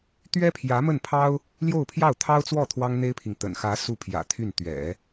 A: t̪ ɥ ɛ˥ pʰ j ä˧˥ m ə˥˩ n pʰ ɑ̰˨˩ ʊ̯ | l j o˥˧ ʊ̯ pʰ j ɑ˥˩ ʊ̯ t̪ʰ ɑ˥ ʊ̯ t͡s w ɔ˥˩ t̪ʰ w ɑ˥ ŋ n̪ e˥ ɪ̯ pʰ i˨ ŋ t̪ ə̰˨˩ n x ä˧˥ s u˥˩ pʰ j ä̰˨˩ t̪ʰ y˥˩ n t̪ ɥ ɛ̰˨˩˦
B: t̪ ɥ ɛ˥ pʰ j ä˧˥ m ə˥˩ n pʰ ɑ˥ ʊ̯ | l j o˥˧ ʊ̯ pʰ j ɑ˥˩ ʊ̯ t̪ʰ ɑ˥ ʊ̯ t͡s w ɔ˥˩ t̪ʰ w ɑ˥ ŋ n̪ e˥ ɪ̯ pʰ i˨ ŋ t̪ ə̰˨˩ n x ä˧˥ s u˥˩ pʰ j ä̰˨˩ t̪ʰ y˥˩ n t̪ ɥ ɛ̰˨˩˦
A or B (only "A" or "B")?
B